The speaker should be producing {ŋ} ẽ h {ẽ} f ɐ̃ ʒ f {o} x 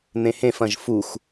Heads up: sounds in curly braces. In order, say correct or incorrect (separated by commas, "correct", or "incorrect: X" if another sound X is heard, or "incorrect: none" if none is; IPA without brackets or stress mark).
incorrect: n̪, correct, incorrect: u